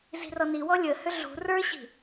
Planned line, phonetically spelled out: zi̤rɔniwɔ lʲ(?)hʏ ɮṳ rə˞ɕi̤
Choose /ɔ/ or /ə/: ə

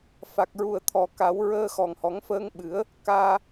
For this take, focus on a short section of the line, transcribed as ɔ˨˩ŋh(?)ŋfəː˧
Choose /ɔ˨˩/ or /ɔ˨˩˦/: ɔ˨˩˦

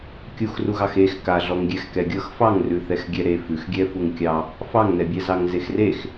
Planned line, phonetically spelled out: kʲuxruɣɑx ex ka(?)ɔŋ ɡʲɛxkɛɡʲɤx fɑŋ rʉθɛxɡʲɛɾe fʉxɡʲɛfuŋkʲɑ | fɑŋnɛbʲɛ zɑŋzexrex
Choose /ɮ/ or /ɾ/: ɮ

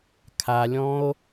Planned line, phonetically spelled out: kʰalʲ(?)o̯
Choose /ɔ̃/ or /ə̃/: ɔ̃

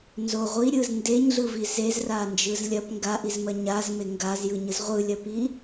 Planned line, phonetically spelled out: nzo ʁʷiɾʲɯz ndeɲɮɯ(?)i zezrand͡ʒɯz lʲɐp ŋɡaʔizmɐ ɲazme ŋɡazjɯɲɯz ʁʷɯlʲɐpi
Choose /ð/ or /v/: v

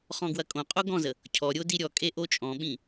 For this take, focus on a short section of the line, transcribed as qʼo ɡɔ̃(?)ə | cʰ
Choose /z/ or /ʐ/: z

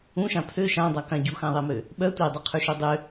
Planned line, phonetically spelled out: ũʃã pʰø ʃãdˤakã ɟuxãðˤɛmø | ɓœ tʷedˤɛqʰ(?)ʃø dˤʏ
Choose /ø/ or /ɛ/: ø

